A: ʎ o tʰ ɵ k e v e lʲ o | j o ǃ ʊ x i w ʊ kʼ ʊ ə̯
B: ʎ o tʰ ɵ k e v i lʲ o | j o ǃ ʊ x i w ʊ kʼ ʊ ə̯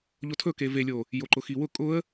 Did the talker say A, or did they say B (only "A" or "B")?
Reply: A